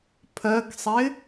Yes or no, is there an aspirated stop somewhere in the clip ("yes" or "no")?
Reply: yes